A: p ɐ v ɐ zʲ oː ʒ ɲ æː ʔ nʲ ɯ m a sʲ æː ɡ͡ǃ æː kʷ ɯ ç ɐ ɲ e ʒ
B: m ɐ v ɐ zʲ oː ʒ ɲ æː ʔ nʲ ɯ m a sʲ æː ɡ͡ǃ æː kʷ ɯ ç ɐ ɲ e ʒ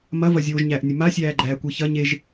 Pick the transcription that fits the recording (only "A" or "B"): B